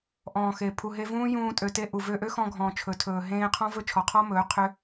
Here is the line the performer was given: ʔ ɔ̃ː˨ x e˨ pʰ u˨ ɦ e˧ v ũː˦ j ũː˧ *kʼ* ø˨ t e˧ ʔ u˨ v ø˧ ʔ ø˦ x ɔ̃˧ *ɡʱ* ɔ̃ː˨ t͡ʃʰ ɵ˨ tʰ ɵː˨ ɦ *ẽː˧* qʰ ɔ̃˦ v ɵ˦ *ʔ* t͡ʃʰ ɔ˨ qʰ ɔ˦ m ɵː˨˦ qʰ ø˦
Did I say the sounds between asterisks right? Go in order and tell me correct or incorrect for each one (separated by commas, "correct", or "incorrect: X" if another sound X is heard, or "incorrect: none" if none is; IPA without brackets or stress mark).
incorrect: tʼ, correct, correct, incorrect: none